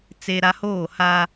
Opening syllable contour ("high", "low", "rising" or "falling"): high